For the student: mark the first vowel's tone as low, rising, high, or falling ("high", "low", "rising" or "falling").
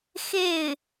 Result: falling